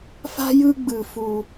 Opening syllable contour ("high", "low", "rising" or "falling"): high